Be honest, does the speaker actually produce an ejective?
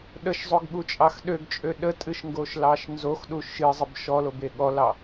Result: yes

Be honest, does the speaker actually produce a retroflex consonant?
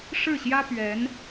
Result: yes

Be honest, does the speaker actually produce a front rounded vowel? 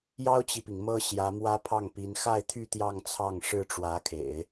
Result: yes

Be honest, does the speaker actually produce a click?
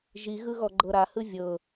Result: yes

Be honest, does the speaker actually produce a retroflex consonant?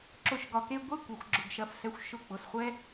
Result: no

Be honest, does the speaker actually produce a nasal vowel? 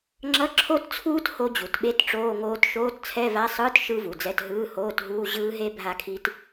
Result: no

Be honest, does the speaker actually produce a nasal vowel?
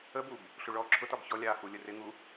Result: no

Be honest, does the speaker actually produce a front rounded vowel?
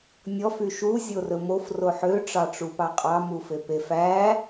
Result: yes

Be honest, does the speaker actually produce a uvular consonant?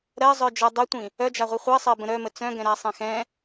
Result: yes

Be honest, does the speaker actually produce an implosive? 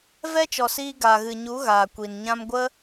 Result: no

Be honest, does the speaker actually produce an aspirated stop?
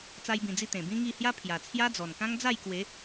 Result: yes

